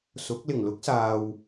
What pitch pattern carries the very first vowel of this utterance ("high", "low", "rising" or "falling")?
rising